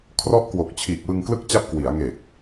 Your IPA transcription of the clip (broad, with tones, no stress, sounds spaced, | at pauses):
kʰ r ɔ˦˥ ʔ k w o˨˩ k̚ t͡ɕʰ iː˨˩ k̚ w ɯ˧ ŋ k l ɯ˥˩ k̚ t͡ɕ a˦˥ p̚ k w i˩˦ a̯ ŋ e˨˩ k̚